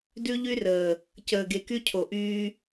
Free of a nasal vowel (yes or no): yes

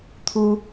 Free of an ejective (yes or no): yes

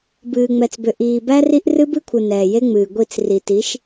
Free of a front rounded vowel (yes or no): no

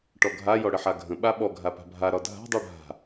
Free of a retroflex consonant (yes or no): no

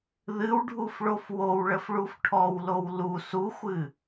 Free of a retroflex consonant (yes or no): no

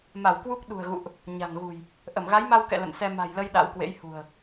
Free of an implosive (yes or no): no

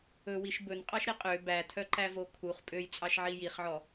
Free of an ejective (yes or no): no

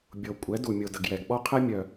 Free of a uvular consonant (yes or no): no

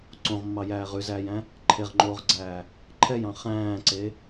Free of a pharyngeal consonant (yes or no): yes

